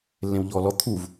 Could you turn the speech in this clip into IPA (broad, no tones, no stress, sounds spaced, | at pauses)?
lː ẽ w ʎ ɔː l ɔ t̪ʰ u v